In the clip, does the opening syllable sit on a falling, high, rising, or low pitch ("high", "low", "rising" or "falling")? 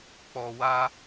low